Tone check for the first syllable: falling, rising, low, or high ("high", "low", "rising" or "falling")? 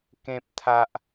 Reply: high